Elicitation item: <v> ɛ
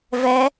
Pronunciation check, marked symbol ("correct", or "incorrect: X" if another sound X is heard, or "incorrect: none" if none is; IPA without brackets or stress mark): correct